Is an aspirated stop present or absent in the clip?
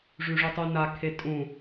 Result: present